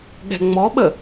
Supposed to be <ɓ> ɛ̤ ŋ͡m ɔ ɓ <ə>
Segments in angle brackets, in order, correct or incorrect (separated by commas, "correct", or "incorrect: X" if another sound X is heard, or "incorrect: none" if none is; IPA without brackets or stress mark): incorrect: ɠ, correct